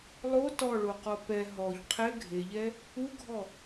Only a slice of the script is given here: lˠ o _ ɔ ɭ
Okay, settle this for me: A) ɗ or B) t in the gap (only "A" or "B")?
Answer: B